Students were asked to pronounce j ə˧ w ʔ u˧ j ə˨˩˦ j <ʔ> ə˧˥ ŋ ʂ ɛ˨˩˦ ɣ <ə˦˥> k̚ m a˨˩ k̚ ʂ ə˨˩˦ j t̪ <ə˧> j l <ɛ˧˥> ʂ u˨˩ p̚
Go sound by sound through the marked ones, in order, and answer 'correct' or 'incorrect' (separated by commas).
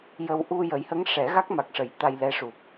incorrect, incorrect, incorrect, correct